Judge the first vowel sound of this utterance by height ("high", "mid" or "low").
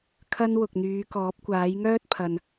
low